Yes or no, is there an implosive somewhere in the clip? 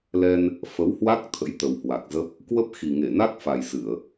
no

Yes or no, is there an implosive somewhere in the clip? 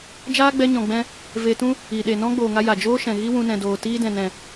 yes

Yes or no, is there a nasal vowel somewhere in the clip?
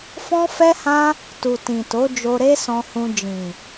yes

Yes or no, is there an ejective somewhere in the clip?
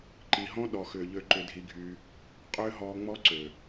yes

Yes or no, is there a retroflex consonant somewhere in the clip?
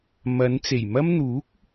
no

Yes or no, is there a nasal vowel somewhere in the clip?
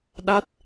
no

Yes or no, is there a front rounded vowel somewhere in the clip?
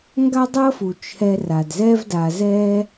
no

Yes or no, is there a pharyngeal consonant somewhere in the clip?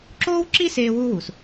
no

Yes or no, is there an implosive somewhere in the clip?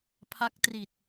no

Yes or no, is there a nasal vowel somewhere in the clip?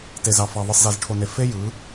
no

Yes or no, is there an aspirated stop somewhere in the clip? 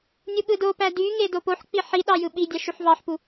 no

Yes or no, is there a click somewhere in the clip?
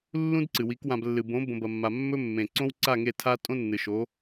yes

